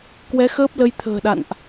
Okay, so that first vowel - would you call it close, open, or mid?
mid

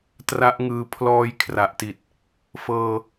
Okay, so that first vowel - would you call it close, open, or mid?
open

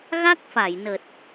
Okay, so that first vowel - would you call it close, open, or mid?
open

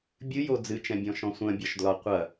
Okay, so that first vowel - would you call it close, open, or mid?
close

